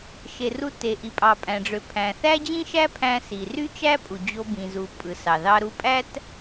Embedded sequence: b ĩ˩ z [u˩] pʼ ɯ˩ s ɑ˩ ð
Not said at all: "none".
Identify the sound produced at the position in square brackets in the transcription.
u˩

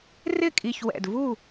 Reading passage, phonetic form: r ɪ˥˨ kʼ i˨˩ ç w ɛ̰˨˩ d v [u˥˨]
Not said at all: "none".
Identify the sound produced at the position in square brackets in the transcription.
u˥˨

